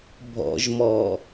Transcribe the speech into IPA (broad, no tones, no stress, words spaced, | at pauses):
bʱɔ̰ʒmɔ